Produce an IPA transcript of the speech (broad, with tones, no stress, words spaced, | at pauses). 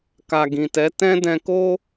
ka˨ɡĩ˨tɛ˨˦ tɛ̃˦dɛ̃˧ko˦